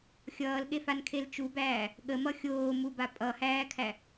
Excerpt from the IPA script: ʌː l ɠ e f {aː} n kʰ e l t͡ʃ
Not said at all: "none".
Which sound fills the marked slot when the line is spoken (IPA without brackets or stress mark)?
a